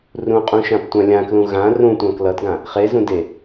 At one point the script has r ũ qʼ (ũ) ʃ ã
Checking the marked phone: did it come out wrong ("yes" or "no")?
no